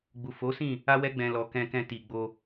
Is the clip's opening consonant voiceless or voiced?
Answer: voiced